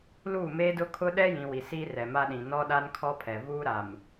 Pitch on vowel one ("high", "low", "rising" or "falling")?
falling